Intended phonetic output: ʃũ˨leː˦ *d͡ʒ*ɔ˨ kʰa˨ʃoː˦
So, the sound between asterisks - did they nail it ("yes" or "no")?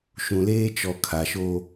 no